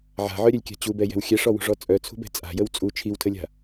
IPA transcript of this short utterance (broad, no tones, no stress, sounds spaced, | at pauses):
ʕ a̤ ʕ œ ɾʲ œ lʲ kʲ a̤ t͡ɕ u b ɛ j ɛ̤ w xʲ ɛ ʂ ɔ w ṳ ʐ ɔ t͡sʼ œ t͡sʰ ṳ b ɛ̤ t͡sʼ a̤ j ə w t͡sʼ u t͡ʃʰ i w tʰ ə lʲ a̤